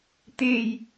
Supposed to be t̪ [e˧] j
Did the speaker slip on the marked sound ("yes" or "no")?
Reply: yes